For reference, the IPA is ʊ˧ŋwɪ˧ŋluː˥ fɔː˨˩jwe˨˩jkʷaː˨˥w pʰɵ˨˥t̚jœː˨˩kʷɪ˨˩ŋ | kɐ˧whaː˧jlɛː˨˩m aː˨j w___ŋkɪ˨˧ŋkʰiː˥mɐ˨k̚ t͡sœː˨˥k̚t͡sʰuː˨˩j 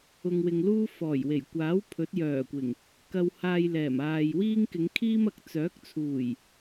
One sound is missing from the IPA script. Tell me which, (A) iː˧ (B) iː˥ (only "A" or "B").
B